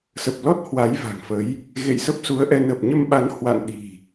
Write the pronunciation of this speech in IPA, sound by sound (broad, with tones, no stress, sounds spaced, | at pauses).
s ə˨˩ p̚ l ɔ˦˥ t̚ h w a˨˦ j v a̤˨˩ ŋ f ə˨˦ j | ɣ ḛ˧˨ j s ə˦˥ p̚ s u˨˦ ə̯ ʔ ɛ˧ n ə˨˩ p̚ ɲ ə˧ m ɓ a˨˦ n h w a̰˧˨ n ɗ i̤˨˩